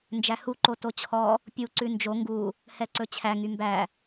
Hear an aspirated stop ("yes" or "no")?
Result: yes